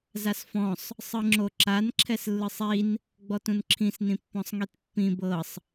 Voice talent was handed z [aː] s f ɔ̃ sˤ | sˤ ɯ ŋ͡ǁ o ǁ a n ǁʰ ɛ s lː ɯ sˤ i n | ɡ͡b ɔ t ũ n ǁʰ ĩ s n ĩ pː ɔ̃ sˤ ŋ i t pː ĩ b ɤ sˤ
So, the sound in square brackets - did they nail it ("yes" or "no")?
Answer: no